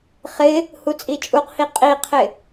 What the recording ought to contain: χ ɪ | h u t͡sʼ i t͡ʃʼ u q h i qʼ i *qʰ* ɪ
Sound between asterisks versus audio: correct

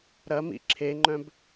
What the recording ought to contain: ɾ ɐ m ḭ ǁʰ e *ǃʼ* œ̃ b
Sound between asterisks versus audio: incorrect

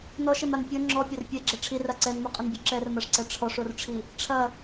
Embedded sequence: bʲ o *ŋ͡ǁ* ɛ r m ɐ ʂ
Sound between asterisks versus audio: incorrect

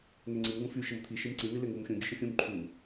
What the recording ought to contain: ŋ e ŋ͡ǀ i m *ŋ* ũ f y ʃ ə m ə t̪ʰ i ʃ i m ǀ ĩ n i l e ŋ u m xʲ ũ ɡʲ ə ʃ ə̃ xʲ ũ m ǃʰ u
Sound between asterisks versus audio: correct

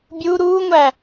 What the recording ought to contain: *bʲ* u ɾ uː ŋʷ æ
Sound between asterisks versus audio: correct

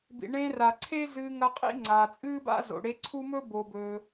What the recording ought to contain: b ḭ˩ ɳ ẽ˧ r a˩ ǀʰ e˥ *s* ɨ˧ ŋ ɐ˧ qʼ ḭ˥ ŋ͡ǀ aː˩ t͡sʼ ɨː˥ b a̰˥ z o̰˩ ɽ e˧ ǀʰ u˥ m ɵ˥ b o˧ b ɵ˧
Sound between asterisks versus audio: incorrect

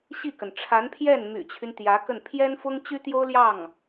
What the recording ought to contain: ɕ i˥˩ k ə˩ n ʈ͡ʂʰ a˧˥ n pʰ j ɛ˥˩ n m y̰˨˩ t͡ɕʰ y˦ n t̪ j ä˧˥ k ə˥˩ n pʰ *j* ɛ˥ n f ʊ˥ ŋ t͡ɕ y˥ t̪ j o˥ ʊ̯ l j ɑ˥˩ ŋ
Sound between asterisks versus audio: correct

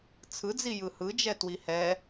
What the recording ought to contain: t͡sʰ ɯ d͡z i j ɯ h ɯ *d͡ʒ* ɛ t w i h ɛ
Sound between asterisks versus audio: correct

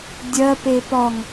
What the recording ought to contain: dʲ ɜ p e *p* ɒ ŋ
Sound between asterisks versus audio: correct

